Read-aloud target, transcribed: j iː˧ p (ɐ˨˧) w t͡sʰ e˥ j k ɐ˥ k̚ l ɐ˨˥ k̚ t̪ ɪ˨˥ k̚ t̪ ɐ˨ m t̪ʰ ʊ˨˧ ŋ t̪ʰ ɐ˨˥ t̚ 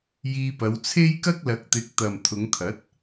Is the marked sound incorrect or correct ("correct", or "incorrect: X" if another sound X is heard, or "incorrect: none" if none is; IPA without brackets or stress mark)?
correct